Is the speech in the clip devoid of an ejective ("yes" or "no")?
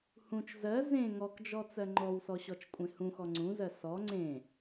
no